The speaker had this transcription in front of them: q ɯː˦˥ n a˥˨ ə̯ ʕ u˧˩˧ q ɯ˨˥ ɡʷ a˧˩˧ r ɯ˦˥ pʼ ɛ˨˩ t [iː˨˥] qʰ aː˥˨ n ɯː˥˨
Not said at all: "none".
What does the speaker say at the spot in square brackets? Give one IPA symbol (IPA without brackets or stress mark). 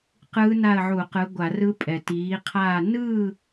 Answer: iː˨˥